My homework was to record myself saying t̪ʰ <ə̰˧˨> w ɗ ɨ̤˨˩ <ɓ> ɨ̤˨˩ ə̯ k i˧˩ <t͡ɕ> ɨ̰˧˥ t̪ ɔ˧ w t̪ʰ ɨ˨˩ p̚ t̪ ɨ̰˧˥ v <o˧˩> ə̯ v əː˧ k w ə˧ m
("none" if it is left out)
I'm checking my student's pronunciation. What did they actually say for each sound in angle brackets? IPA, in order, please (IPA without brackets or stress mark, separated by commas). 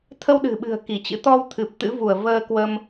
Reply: ə˧, ɓ, t͡ɕ, u˧˩